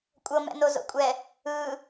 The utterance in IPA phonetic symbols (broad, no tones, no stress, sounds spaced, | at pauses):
kʷʼ ɤ m ɛ̰ n o z o̰ kʷʼ ɛ | ɯ